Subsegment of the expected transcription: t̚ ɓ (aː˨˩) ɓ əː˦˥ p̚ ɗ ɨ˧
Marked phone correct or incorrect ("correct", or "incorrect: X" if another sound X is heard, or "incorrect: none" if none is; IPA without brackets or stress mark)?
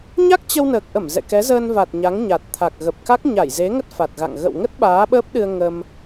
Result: incorrect: aː˨˦